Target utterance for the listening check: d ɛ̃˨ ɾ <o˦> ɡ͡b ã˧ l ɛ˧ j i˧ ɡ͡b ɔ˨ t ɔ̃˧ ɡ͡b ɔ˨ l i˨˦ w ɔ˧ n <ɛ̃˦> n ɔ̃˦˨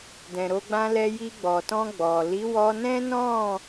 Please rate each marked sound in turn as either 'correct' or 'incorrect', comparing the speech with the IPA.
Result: incorrect: o˧, correct

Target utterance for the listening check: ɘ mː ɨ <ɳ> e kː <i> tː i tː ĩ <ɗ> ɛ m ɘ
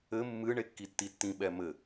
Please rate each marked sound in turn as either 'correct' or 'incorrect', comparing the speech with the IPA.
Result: correct, correct, incorrect: ɓ

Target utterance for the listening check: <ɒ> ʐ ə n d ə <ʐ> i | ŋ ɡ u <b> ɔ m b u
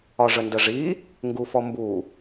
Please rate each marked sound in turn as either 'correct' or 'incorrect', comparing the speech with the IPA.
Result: correct, correct, incorrect: f

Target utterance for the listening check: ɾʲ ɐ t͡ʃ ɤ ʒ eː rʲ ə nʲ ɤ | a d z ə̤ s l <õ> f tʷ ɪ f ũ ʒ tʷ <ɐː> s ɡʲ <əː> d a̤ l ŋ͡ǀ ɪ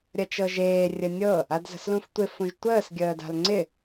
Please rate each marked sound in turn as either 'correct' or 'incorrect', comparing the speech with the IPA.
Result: incorrect: ũ, incorrect: əː, correct

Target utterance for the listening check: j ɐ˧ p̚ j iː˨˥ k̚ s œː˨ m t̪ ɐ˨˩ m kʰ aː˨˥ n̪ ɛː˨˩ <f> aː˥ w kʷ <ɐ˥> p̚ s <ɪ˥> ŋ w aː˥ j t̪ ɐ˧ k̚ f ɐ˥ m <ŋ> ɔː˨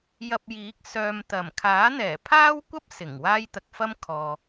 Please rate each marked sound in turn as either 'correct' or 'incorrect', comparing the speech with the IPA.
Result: incorrect: pʰ, correct, incorrect: ɪ˨˩, incorrect: kʰ

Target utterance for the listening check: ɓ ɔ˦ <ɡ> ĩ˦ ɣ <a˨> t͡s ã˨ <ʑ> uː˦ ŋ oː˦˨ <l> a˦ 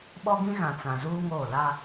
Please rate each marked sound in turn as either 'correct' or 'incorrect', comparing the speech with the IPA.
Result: correct, incorrect: ã˨, incorrect: z, correct

